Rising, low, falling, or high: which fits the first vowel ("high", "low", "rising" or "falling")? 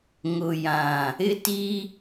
low